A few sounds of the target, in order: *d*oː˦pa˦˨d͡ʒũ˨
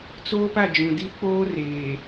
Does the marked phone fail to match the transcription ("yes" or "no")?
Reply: yes